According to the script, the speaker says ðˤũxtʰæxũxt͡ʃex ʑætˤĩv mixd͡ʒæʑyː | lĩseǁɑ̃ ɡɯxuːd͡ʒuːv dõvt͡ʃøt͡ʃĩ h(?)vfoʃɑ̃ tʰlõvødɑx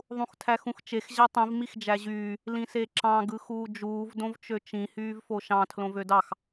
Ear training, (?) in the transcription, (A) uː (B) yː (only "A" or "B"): B